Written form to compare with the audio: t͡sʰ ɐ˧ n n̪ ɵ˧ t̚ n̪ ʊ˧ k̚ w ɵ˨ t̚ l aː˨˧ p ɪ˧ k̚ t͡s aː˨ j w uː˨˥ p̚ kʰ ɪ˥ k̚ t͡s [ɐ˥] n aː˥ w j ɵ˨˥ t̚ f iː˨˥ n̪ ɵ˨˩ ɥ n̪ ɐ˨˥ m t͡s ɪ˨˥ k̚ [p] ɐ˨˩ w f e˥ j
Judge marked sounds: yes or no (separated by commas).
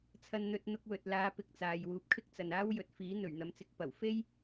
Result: no, yes